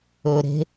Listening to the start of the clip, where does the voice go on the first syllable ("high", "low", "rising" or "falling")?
low